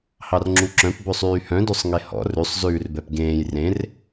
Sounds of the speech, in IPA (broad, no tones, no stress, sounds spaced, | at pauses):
h ɑ r ŋ͡ǁ u ǁ œ̃ p b ɵ sˤ yː h œ̃ d ø sˤ ŋ e h ɔ̰ r ʉ sˤ z ʉː r b ɛ p ɡ ẽː j r ẽ r